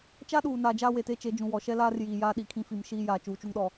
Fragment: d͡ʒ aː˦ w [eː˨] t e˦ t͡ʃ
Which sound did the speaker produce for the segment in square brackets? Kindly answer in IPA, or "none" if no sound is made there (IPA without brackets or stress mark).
e˨